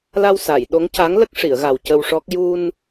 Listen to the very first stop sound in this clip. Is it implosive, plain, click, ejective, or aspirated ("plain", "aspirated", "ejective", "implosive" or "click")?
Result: implosive